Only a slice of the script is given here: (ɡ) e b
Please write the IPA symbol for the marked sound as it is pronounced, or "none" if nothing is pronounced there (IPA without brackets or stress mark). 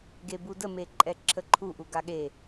ɡ